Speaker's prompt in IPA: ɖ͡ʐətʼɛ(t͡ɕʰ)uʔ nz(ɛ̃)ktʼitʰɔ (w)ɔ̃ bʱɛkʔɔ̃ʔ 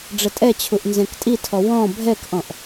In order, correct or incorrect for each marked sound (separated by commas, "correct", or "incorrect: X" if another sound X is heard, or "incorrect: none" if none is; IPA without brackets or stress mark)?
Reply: correct, correct, correct